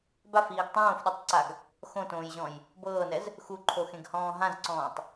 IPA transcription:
bafiːɡ tˤõːfɗutˤǀaɡ | xõtõːjʑɔ̃j | bɤːnɛz | xuǃʰoxẽɡhɔ̃ː ɦãzǀɔ̃ːtˤ

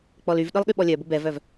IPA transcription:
k͡pɔlyvɗɯlˠ ɠyɓɔlʲœbʊ bɛvœv

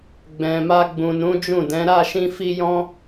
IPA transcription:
ɡ͡bɛ̃˨ma˧ ɡ͡bũ˨nũ˨˦ d͡ʒũ˦˨dɛ̃˨˦ ɾa˦˨ʃĩ˧ fi˦jɔ̃˦

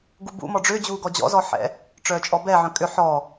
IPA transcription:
ɡubṵ mɔɖ͡ʐʏːd͡ʑuːɡɔ d͡ʑɔ̰zɔħɛ̰ | ʈ͡ʂœːt͡ʃʼɔbɛ ʕœ̃kʼʏ ħɔ

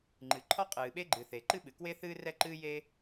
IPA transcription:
ŋ͡ǃɨ˩ǃʰɔ˥ qʼɨː˩ɓe˥ɡ͡ǃɨ˩ θe˩ǃɨ˥ ɓɨ˩kwe˥θɨː˥ rɛ˥ǃɨː˥je˥

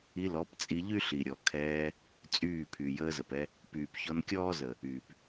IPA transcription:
i˧lɔ˨˦pt͡sʼi˧ ʎy˦ɬi˨ɾʲɔ˨ kʰɛː˧ | t͡sʼyː˦˨pʰy˨ jəː˧zə˨pɛ˧ | pyː˨pçɔ˧n kʲɔː˦zə˨ | yː˨p

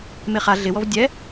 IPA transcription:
meχa ɮɪ wɔvdʲɛ

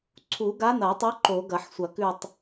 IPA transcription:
ǀʰu˨˩˦ɡa˧˥n̪ɐ˨˩˦tˤo˧˥ ǃo˨˩˦ ɡɐ˨˩˦ħsʷɐ˨˩˦kʉ˦˨tˤ

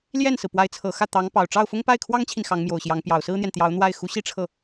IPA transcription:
ljɛ˥˩nsɹ̩˩ pwa˧˥ɪ̯t͡sʰɤ˨˩xä˥˩ t̪ɑ˧˥ŋ pɑ˨˩ʊ̯ʈ͡ʂɑ˥˩ʊ̯fʊ˥ŋ pa˥˩ɪ̯kʰwɑ˥ŋt͡ɕʰi˨n xɑ˧˥ŋmjo˨˩ʊ̯ɕjɑ˧˥ŋ pjɑ˨˩ʊ̯sɹ̩˥n̪jɛ˨n t̪jɑ˧˥ʊ̯ n̪wa˥˩ɪ̯ xu˧˥ɕi˥ʈ͡ʂʰɤ˥˩

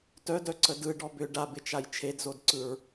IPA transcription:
tœdœǀə dɯɖɔ bʏ ɖabɪt͡ʃaj t͡ʃʰedzodǀɯɹ

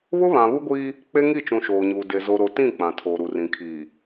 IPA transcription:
βʊ˦βã˨βu˦ɡʷiː˦ | k͡pe˦ŋi˦˨t͡ʃũ˨ ʃoː˨ɲuː˨ de˨ zo˨ɾo˨tĩ˦˨ k͡pã˨tʰoː˨ɾu˨rĩ˨ kʰiː˨

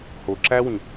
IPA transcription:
ho ǁæwĩ

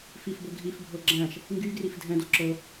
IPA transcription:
fifbɤ ɡʱifbʱɤ ɡ͡ǁæ̃ʃ | ŋɡyɡrif dʱɛ̃do ǁɤ

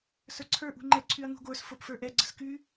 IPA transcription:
sə˞ǀʰə˞ ʔṳŋ͡ǃɛ ǀʰyɐ̯ŋṳɡʷə˞s fopfə˞ʔɛ ɡ͡ǀə̤sky

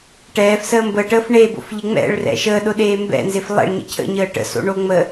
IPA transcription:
ʈɛːfsəː mbəːʈəːf ɳebo̰fʎɪ ŋ͡mɛ̰ɭrɛ̰ ʃəːɗʊɗeː mbɛ̰nzɪf lˠɛ̰ɭɲə̰ cʰə̰ɲəː ʈə̰so̰ɳo ŋ͡mə

